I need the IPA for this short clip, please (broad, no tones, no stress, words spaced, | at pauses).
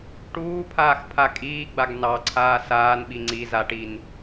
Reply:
ʈuːpʰaːx pʰakʼiːɡ͡baɡ nɑ ǀʰaːsaːnɓi ŋ͡ǀizaʈin